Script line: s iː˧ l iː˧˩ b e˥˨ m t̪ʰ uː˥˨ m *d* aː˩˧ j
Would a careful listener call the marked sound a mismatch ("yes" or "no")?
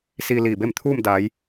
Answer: no